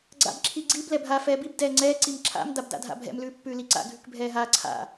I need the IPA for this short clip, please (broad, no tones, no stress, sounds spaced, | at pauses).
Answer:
ɡ͡ǀ a̰ b ǁʰ i ɡ͡ǀ i b l ɛ bʱ aː f ɛː b i b d ɛː ŋ͡ǀ ɛː ǀ i m ǁʰ a̰ m d a b d a̰ dʱ a̰ bʱ ɛ̰ m l ʉː pː ʉː l i ǀ a̰ ɡʱ ʉ k bʱ ɛː ɦ aː ǀʰ a̰